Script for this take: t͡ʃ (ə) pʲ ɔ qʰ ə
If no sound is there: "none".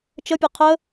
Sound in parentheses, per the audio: ə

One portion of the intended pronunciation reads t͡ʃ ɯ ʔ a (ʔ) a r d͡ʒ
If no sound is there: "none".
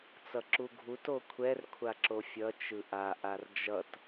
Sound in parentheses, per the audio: ʔ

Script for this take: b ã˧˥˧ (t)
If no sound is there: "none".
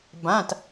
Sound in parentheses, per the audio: t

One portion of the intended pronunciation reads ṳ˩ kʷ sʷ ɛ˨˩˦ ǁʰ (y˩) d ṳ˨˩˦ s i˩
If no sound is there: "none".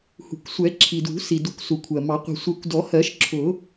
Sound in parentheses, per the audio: i˩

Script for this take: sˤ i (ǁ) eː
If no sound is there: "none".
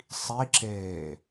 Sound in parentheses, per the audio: ǁ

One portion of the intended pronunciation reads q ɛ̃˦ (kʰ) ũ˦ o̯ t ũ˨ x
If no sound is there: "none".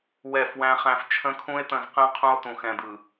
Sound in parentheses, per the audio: qʰ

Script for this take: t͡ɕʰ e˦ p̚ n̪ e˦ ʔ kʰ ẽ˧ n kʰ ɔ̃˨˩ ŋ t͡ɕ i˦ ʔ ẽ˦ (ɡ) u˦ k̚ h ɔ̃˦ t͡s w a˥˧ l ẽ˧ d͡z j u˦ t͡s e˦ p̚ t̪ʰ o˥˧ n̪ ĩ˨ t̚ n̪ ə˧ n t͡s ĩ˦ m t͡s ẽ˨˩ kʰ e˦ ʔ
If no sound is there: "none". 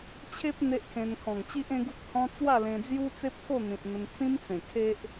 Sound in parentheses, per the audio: ɡ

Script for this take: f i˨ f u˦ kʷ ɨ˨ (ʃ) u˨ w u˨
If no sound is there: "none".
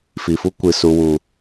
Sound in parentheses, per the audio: s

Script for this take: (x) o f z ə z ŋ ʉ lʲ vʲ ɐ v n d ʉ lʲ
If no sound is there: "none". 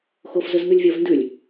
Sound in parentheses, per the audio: x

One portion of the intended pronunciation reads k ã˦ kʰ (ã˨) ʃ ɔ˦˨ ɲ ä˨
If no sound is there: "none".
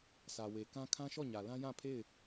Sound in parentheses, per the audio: ã˦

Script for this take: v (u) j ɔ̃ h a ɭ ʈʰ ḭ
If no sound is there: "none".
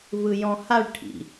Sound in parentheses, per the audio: ɯ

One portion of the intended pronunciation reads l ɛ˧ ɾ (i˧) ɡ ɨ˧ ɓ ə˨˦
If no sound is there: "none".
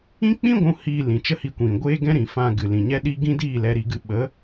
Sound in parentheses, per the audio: i˧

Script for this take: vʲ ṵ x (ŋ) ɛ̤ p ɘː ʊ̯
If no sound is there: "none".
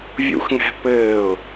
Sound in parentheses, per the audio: ŋ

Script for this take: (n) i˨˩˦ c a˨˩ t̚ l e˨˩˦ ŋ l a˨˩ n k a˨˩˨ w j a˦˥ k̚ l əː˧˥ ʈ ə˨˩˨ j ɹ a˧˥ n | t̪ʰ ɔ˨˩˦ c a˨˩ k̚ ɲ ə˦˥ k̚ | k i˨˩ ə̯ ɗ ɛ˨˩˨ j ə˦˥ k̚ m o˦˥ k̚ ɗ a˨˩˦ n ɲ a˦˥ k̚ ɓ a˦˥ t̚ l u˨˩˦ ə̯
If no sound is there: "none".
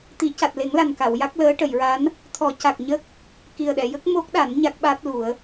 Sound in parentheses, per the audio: t̪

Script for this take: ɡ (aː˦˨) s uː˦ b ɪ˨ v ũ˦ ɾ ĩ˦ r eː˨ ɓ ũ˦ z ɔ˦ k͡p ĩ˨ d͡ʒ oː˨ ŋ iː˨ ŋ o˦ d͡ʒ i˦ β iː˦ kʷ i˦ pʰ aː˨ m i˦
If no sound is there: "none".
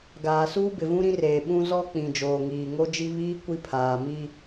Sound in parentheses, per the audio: aː˨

